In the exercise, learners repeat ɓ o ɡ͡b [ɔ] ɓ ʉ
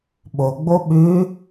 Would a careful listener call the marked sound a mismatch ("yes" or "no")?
yes